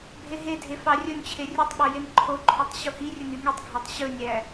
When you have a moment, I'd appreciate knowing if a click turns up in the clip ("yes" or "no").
yes